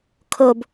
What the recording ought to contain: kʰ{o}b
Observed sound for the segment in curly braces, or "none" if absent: o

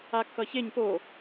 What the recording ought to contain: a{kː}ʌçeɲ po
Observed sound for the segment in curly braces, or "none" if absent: kː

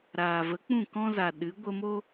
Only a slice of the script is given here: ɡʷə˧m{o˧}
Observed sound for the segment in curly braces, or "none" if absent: o˦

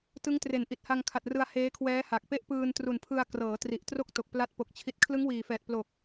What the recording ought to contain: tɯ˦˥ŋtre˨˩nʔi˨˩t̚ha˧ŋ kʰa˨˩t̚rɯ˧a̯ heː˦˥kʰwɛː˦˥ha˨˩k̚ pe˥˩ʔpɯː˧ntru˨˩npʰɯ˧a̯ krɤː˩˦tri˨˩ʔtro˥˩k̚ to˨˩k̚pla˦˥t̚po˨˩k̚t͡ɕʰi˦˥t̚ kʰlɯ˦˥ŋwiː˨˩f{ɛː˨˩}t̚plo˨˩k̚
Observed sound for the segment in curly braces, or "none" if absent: ɛː˨˩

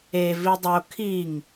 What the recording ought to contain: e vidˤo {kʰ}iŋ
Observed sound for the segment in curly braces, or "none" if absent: kʰ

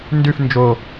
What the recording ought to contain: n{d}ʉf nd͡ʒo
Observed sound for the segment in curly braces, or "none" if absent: d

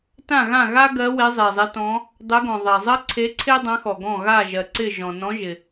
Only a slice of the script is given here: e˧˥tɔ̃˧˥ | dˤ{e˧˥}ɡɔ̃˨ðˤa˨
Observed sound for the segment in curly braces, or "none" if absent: e˧˥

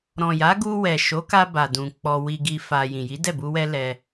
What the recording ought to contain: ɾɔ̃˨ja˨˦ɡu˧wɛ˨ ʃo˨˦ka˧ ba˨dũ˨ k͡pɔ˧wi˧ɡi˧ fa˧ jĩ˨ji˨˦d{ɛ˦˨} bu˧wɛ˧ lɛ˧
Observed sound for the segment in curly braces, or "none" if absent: ɛ˦˨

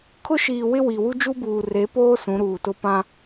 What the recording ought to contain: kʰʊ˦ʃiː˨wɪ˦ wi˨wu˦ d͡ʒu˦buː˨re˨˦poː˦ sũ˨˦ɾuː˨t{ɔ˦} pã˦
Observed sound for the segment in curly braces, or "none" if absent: ʊ˦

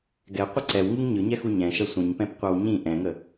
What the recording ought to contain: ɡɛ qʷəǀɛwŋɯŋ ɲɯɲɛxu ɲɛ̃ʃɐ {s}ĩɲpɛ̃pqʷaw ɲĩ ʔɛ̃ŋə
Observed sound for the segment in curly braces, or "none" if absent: sʷ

